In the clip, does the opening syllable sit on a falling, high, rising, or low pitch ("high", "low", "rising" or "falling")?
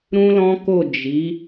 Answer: high